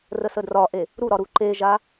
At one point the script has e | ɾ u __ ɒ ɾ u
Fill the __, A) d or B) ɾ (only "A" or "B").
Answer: B